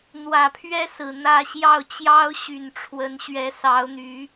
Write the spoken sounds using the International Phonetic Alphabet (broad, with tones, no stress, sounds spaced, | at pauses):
n̪ w ä˨˩ pʰ ɥ ɛ˥ s ɹ̩˨˩ n̪ ä˥˧ ɕ j ɑ˥˩ ʊ̯ t͡ɕ j ɑ˥ ʊ̯ ɕ y˨˩ n ʈ͡ʂʰ w ə˧˥ n ɕ ɥ ɛ˧˥ s ɑ˧˥ ʊ̯ n̪ y˧˥